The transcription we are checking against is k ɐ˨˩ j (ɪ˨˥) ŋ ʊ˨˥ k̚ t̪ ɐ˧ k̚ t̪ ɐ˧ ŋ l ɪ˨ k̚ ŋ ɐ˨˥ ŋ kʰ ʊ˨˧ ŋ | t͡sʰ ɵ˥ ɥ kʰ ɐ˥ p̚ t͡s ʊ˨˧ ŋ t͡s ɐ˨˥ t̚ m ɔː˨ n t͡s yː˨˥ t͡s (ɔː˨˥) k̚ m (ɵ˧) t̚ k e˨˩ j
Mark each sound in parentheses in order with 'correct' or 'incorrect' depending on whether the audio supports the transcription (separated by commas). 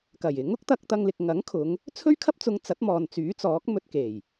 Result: correct, correct, correct